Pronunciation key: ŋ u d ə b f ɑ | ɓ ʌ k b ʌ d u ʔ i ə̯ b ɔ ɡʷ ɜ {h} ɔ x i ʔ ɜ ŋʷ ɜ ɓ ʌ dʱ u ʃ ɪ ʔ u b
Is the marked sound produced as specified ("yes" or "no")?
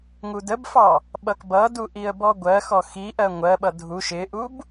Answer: no